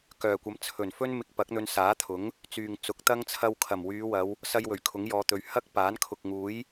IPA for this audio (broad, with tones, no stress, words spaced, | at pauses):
kœː˨˩kʷɐ˨˥m t͡sʰɵ˨˩nfɵ˥n mɪ˧k̚ pɐ˨˥k̚n̪ɵ˧nsaː˨˥t̪ʰʊ˨˥ŋ | t͡syː˨ŋt͡sʊ˨˥k̚t̪ɐ˥ŋ t͡sʰɐ˧wkʰɐ˨˩m wyː˨˧wɐ˨˧w | sɐ˧j wɵ˨˩ɥkʰʊ˨˥ŋjɔː˨˧t̪ɵ˨˧ɥ hɐ˥k̚ paː˨˥nkʰʊ˨k̚ŋuː˨˥j